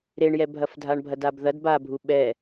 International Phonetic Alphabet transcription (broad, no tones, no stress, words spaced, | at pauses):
ɾeɳjɛbʱɐfdʱaɳ bʱɐdabðɐd babʱu ɓɛ